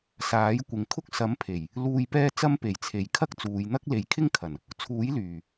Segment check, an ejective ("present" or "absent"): absent